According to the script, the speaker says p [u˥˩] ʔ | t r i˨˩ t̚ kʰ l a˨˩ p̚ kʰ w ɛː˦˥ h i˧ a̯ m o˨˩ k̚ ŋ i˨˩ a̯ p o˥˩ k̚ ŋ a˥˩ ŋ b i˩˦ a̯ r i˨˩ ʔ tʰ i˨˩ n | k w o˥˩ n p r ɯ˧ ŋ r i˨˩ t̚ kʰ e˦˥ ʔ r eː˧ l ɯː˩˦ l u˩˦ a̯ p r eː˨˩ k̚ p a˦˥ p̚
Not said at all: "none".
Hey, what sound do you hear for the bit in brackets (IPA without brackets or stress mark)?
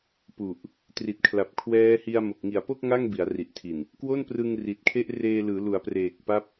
u˨˩